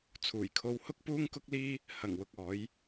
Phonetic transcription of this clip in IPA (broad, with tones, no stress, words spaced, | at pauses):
t͡sʰuː˨˩jkʰo˧w hʊ˥k̚puː˥ŋkʊ˥k̚liː˥ | hɐ˨˩ŋwʊ˨k̚ ɔː˨˥j